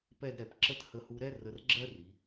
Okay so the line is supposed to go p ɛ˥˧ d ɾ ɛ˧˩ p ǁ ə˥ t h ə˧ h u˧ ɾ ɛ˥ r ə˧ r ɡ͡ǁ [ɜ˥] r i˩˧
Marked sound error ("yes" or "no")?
no